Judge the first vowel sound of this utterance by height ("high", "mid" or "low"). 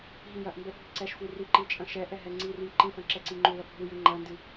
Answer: high